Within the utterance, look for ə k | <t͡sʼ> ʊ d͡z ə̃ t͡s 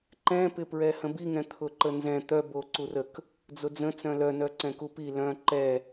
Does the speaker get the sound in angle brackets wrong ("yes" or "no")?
yes